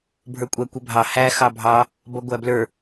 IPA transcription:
bʱ ə˞ kʷʼ æ kʷ ɛ bʱ ɑ h æ x ɑ bʱ ɑ | b ʌ ɡʷ æ b l ə˞

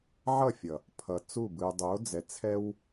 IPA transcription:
ʕ ʌ˦˨ fʲ ʌ˨ | pʰ ʌ˨ t͡s u˦˨ b ɯ˨ y̯ dˤ o˨˦ d͡z ɛ˨ t͡sʰ ɛ˦ w

